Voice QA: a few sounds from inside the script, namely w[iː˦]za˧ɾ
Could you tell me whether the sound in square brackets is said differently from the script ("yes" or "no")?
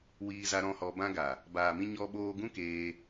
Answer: yes